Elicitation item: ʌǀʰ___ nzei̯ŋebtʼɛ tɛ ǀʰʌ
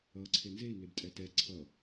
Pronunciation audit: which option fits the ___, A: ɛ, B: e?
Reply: B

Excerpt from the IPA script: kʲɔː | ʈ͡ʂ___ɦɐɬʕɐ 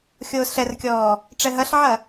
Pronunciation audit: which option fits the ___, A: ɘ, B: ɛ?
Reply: B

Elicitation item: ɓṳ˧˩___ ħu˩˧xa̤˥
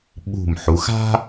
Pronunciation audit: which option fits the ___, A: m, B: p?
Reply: A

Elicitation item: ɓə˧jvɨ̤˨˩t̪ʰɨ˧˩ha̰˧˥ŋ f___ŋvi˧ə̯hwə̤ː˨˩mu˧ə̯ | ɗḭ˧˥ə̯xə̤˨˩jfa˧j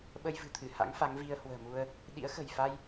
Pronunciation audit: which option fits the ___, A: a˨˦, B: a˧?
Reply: A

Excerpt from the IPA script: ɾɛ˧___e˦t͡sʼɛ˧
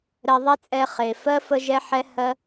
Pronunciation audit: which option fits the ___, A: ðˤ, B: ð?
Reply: A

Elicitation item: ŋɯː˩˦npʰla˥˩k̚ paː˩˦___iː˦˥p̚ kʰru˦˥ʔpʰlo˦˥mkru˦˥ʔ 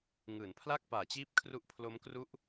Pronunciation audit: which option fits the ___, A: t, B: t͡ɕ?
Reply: B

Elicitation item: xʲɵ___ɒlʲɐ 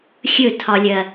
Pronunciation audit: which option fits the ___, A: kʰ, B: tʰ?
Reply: B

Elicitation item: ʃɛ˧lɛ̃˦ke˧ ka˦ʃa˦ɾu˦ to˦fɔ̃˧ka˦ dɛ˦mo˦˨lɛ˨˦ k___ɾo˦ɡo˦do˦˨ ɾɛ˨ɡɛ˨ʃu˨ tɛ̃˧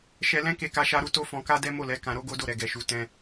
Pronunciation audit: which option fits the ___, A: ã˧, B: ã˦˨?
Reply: A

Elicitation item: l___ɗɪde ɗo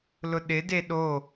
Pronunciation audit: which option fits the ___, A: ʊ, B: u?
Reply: A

